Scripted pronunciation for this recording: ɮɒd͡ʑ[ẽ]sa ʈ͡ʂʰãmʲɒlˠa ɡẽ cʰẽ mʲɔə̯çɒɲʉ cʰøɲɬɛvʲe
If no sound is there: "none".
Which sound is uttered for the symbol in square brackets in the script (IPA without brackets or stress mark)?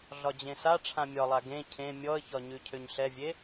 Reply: ẽ